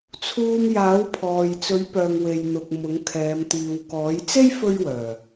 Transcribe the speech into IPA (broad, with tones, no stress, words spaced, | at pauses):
t͡sʰuː˧mjaː˨˥wpʰɔː˨j t͡sɵ˨˥ɥpœː˨ŋ we˨jn̪ʊ˨k̚ mʊ˨˥ŋkʰɛː˨˧m t̪iː˨wkɔː˨˥j t͡se˥j fɵ˥ɥwœː˨˩